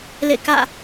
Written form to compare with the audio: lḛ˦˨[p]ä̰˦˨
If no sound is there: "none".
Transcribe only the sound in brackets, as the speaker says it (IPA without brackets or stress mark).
k